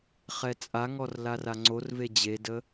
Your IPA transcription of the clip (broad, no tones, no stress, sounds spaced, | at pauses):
χ ɛ t͡sʼ a ŋ ɔ r l a r a ŋ͡ǀ o r v e d͡ʑ e d ə